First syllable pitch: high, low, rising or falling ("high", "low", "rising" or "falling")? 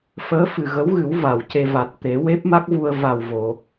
rising